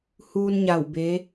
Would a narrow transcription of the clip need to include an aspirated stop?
no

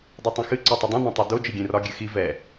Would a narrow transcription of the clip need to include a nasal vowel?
yes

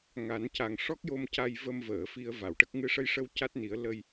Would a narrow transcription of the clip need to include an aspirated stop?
no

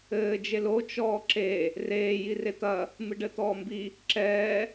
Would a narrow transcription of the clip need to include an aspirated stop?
no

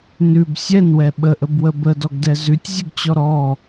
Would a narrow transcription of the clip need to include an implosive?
yes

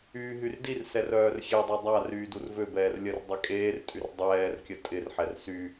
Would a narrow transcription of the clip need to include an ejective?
yes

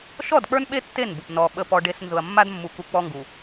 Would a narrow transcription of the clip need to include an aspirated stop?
no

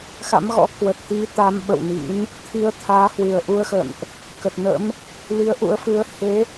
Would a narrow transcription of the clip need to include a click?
no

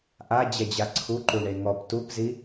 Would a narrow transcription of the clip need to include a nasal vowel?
no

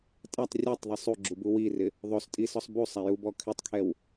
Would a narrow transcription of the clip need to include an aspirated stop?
yes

